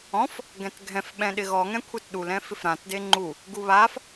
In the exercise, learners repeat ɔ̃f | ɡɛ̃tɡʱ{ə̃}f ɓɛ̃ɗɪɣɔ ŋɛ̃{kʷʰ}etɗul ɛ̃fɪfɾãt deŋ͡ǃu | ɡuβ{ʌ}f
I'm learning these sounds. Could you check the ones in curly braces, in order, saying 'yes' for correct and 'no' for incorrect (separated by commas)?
no, yes, no